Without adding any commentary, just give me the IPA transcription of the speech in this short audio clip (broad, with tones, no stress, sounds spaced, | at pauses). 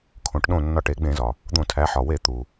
kʰ õ˩˧ ʈ ɗ õ˧˩ nː ɒ˧˩ ʈ e˧˩˧ ɡ͡b ẽ˧˩˧ z ɒ˩ | d̪ õ˧˩˧ tʰ æ˩˧ ħ ɒ˩ w e˧˩˧ t̪ u˩